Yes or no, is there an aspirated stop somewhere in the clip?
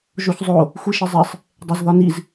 no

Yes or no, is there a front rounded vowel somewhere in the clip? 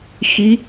no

